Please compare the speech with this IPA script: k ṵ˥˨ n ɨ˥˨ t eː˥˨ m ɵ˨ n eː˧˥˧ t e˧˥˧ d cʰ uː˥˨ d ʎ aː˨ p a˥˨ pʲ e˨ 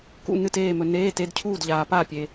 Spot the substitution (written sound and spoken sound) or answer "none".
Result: none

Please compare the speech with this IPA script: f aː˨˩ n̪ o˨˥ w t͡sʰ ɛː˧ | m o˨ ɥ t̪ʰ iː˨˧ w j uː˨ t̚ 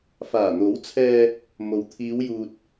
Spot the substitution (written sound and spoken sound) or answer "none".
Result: ɥ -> w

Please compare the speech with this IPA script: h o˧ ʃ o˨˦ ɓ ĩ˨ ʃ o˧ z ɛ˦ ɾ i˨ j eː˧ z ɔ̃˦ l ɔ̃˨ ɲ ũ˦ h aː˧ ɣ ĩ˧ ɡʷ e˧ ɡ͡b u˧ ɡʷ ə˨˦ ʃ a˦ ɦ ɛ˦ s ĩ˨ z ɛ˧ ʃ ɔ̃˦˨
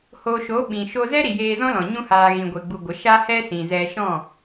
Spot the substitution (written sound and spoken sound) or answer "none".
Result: ɦ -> h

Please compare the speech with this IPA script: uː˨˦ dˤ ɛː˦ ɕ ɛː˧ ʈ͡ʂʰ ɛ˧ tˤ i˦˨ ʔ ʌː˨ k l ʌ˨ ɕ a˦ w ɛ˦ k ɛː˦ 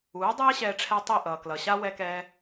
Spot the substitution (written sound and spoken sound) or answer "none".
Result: none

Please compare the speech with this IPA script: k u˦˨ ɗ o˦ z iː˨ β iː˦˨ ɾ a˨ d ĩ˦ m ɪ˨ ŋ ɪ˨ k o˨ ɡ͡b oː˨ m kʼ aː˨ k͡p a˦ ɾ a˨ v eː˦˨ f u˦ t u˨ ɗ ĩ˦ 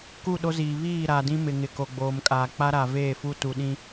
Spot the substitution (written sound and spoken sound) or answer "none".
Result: none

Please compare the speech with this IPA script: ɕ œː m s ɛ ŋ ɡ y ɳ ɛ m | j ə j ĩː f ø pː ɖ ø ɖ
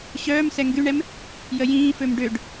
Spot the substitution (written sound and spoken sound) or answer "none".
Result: pː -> m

